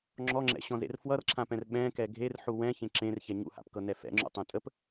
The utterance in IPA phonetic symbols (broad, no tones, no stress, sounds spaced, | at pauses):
ŋ͡ǁ ɔ ŋ͡ǁ ɛ̰ ɕ ɔ̃ z ḛ r f w ʌ r ǁʰ ã p ɛ̃ r ɓ ɛ̃ k ɛ ɡʱ e r ħ u w ɛ̃ ç ẽ ǁ ẽ r ç ɛ ɲ ṵ h a̰ p k ɤ n ɛ f ɛ̰ ŋ͡ǁ ṵ tˤ ẽ tʼ ə p